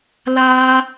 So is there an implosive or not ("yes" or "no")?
no